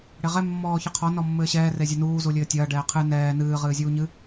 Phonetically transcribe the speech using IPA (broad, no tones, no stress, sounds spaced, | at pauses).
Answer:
ɽ e ʁ ɛ mː ɔː ç ɨ qʰ ɔ n ɔ mː ɘː ɕ ɛː r e zʲ ɛ n uː z u lʲ ɘː tʲ ɐː ɖ ɛː qʰ ɨ n ɛː n ɨː ʁ ɨː zʲ uː ɲ ɨ